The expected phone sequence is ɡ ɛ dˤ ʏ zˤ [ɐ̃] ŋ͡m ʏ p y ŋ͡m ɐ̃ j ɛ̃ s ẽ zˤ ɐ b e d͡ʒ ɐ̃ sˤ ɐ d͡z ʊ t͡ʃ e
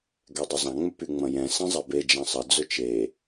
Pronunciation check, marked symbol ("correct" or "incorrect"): incorrect